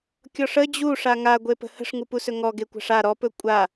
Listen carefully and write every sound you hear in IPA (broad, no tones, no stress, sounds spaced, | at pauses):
kʲ ɔ ʂ ə d͡ʑ u ʂ a ŋ a ɡʷ e p ə̤ h ə̤ ʂ ŋ u p u s ɵ ŋ ɔ ɡ e kʷ a̤ ʂ a ɾ ɔ p ɵ kʷʼ a